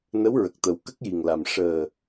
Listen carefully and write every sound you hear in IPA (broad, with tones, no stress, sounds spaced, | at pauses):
n ə˧˥ w ɹ ə˨˩ k̚ t̪ ə˨˩ w k ə˦˥ k̚ j i˨˩ ŋ l a˨˩ m ʂ əː˨˩